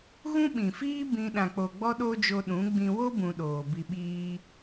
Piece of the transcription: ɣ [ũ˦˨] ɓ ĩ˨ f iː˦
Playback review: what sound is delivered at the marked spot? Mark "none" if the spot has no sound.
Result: ũ˦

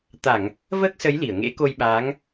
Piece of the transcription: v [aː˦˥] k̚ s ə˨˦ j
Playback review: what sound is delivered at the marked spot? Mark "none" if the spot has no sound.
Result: əː˦˥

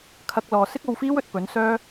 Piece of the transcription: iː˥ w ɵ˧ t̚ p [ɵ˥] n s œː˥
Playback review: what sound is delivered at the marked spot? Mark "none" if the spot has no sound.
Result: ɵ˨˥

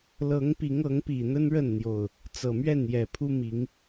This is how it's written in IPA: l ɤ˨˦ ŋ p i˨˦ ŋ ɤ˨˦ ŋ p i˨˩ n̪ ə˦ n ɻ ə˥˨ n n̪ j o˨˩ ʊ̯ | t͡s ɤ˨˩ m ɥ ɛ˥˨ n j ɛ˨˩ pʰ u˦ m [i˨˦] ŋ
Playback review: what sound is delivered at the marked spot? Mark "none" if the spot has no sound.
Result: i˨˦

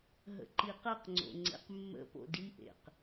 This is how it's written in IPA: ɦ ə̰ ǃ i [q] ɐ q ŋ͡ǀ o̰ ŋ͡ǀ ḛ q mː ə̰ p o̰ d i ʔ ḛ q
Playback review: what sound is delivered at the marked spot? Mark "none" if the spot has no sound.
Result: q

